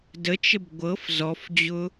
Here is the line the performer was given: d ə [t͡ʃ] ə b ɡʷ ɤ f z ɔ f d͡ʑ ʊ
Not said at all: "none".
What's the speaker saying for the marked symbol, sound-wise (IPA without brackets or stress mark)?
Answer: t͡ʃ